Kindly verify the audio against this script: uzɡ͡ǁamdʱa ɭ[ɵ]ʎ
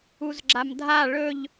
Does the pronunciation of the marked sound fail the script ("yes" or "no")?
no